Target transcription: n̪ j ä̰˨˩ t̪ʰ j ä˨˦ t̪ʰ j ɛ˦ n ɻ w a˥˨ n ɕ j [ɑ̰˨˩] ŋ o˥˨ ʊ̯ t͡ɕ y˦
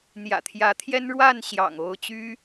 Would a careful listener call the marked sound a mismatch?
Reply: no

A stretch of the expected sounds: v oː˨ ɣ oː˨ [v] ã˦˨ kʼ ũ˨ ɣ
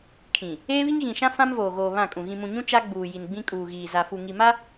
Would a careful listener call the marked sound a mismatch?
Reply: yes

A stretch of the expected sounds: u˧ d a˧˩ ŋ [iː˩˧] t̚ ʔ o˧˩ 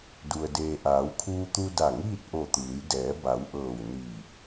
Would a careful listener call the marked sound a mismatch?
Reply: yes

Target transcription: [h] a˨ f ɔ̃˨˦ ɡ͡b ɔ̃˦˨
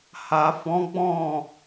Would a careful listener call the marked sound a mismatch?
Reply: no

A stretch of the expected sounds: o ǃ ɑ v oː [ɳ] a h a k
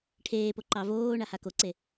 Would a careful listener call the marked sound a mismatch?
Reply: no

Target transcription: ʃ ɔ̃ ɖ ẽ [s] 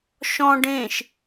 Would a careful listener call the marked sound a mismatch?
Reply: yes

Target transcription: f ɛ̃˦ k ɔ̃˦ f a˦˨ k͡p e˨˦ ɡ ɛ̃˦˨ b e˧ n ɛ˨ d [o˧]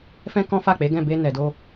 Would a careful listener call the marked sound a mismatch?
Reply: no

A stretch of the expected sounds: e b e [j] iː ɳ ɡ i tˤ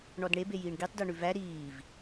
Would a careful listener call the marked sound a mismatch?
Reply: no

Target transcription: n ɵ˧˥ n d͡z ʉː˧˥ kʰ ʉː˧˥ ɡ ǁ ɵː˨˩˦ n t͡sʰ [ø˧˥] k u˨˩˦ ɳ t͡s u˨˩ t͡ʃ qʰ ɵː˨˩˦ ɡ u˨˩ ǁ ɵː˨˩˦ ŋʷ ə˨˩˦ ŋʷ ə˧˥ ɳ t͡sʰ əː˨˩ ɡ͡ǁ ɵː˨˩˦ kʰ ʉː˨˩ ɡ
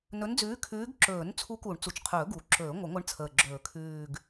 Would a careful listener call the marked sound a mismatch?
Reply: yes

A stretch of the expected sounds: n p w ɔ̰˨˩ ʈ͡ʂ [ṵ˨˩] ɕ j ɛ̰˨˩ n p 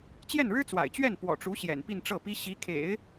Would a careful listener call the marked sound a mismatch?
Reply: yes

